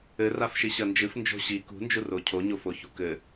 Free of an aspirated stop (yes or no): no